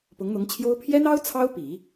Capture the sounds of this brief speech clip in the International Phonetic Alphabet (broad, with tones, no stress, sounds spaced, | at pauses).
p ʊ˧˥ ŋ n̪ ʊ˧˥ ŋ t͡ɕʰ j o˥ ʊ̯ pʰ j ɛ˥ n ɑ˥ ʊ̯ t͡sʰ ɑ˥ ʊ̯ p i˨˩˦